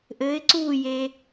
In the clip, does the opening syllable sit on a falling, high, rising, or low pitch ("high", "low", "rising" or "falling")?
rising